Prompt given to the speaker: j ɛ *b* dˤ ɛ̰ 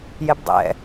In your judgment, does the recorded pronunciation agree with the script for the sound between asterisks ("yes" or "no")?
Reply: yes